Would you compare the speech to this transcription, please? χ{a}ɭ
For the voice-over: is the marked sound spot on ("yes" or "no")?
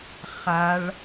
yes